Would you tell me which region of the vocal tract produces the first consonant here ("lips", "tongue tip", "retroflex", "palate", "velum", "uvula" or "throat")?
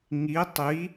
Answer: velum